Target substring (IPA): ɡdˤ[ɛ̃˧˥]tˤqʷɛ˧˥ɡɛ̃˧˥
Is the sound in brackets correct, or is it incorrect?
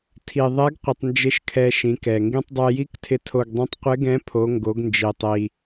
correct